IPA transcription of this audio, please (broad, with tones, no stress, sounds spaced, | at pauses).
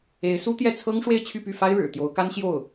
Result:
e˧˥ ɪ̯ s u˥ t̪ j ɛ˥˩ t͡sʰ ɤ˥ ŋ ʂ w e˥˧ ɪ̯ t͡ɕʰ y˥˧ p y˥˩ f a˥ ɪ̯ ɻ ɻ̩˨˩ t̪ j o˧˥ ʊ̯ k a˥ n ɕ j o˥˩ ʊ̯